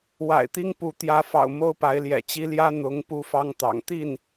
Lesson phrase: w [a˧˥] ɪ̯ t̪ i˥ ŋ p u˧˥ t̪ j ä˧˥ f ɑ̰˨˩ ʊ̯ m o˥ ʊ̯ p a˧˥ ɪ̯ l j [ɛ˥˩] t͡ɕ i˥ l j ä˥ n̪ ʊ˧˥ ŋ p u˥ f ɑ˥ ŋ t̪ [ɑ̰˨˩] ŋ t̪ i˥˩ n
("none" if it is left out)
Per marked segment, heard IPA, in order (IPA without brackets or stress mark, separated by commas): a̰˨˩, ɛ̰˨˩, ɑ̰˨˩